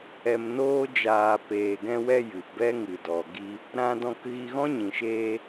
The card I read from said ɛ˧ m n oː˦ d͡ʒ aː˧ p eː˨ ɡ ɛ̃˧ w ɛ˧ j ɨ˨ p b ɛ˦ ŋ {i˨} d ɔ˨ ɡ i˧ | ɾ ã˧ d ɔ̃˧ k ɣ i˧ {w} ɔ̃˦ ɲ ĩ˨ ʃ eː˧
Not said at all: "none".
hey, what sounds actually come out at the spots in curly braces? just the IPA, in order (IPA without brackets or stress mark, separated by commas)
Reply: ɨ˨, ɣ